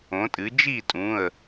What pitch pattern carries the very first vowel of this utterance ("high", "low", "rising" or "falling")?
rising